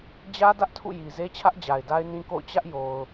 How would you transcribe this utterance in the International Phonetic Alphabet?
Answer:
d͡ʑ ä˦ d ä˦ ʔ tʰ ṵ˦˨ j i˨ z e˦ t͡ɕʰ ä˦ ʔ d͡ʑ a˨ ɪ̯ d a˦ ɪ̯ n ĩ˦ k o̰˦˨ ʊ̯ t͡ɕ ä˦ ʔ j o˨ ʊ̯

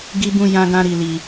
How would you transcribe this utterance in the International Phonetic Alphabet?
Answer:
ɡ i˦ b ũ˦ j ã˦ ɡ ã˦ ɾ i˧ l i˧

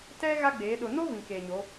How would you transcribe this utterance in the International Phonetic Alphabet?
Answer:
t ɛ˦ ɣ a˦ ɡ͡b eː˨˦ ɗ ʊ˨ n o˦ v ĩ˨ k eː˨ ɲ o˨˦

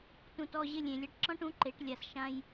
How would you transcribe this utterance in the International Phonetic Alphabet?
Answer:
t ũ˨ t ɔ˦˨ ʑ ɪ˦˨ lʲ ẽ˨ lʲ a˧ ʈ ǁ ɔ̃˦ ʈ ũ˨˦ ǃ e˨˦ ʈ lʲ a˨ s ʃ ã˦ j

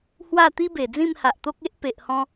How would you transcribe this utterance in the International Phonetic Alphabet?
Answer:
h w a˥˧ t̪ i˦ b e˨˩ d͡z ĩ˥˧ m h a˨ ʔ t̪ o˦ k̚ e˦ ʔ p e˨ ʔ h ɔ̃˧

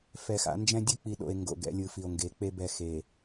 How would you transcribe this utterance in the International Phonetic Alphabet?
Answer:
f ɛ˨ x a̰˨˦ n d͡ʒ ɛ̃˦ dʲ ɯ˦ k͡p i˨ ɗ o̰˨ e̯ ŋ ɡ o̰˨ ɡ ɛ̰˨˦ lʲ ɯ˨ f i˨ o̯ ŋ ɡ e˨˦ k͡p e˦ b ɛ˨ x e˨

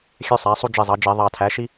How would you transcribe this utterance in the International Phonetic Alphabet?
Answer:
xʲ ø˦˥ sˤ æ˩˥ sˤ u˦˥ d͡ʒ i˧˩ zˤ ɑ˩˥ d͡ʒ e˧˩˧ ðˤ ɑ˧˩ tʰ æ˩˥ ʃ i˦˥

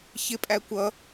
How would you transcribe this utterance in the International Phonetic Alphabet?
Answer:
ç ɪ pʼ æ kʷ ʌ

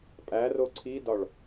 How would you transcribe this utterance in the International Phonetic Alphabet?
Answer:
pʼ æ r o ǀʰ i d ɒ ɭ

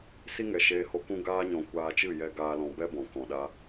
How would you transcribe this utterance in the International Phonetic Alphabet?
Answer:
s i˦ ŋ ɛ˨ ʃ eː˧ h o˧ k ũ˦ ɡ aː˧ ɲ ɔ̃˨ kʷ aː˧ t͡ʃ ɨ˦˨ j ɛ˧ ɡ aː˦ l ɔ̃˧ b ɛ˦ b ɔ̃˨ k ɔ̃˨ ɗ a˦

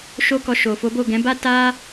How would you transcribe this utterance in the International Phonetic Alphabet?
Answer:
ʃ o˦ k ɔ˧ ʃ o˨ f o˨˦ b o˦˨ ɡ ɛ̃˨˦ b a˦ t a˦

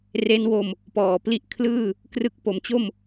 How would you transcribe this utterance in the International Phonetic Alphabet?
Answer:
r e˦˥ n w o˧ m | p ɔː˨˩ p l i˥˩ ʔ kʰ l ɯː˥˩ | k r ɯ˦˥ k̚ p o˩˦ m t͡ɕ o˥˩ m

